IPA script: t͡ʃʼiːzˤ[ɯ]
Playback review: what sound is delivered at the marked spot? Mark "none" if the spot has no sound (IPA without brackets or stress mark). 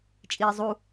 u